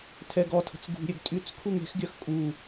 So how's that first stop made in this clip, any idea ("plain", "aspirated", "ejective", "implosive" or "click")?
aspirated